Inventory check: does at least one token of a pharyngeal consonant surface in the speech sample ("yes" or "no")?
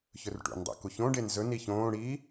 no